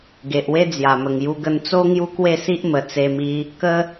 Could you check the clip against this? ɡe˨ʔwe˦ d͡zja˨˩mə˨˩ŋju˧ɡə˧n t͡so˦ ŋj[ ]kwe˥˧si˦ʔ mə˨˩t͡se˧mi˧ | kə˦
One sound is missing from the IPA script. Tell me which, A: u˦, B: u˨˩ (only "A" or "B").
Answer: A